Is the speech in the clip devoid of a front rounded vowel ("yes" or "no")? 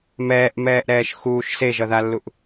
yes